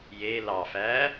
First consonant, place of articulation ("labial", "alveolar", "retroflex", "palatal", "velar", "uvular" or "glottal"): palatal